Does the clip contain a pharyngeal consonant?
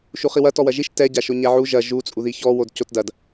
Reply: yes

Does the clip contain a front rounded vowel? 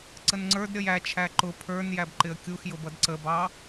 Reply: no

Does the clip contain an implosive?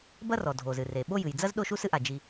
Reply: yes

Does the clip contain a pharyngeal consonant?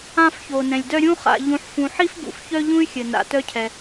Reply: yes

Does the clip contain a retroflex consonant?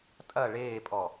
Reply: yes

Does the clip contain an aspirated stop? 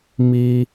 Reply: no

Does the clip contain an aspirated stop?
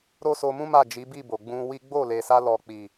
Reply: no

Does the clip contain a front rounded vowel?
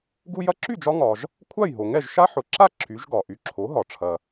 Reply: yes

